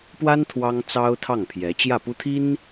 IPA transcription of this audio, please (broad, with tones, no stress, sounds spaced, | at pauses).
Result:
p w a˥ n t̪ʰ w ɑ˥ ŋ t͡s ɑ˥ ʊ̯ t̪ʰ ɑ˥˩ ŋ pʰ j ɛ˧˥ t͡ɕ j ä˥˩ p u˥ t̪ʰ i˥ n